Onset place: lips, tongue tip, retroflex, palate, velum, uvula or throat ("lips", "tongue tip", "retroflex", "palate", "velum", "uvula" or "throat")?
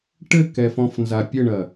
retroflex